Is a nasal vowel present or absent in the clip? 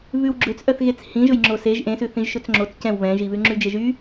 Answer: present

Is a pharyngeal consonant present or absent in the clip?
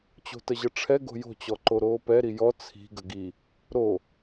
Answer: absent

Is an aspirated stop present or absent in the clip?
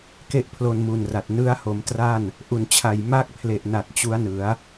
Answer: present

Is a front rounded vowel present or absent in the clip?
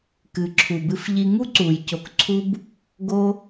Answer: absent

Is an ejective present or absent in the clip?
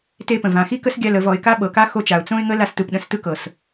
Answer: absent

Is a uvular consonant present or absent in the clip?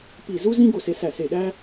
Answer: absent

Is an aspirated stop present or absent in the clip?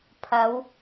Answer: present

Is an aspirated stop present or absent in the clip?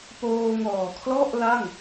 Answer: present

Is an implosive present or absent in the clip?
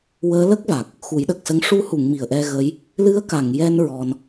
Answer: present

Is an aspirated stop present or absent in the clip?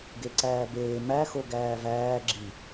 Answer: absent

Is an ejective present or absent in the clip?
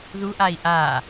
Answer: absent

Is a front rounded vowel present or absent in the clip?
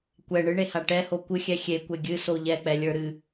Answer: absent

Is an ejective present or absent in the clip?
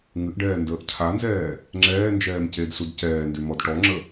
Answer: absent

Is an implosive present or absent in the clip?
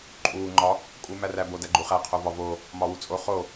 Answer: absent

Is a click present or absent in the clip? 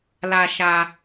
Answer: absent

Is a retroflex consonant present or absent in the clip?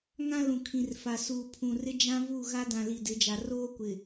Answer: absent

